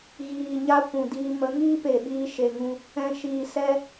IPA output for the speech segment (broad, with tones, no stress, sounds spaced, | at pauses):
ɣ iː˨ ɲ a˦ kʷ ũ˨ d iː˧ m ə˨˦ ŋ iː˦ p e˨ ɓ iː˧ ʃ e˧ ŋ ũ˦ | ɛ̃˨ ʃ iː˨ s ɛ˦